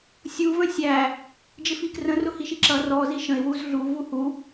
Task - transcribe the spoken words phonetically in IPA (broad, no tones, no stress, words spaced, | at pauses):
sʲu və̃sʲæ | d͡ʒɪfikrə̃ rʊhiʃiǁʌ rɔ ziʃə̃ɪ̯ wuzɮu vuhu